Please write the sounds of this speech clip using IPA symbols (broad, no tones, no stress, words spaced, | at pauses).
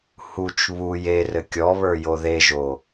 hut͡ʃ βuj erɘ kʲɔβə˞jo ðeʒo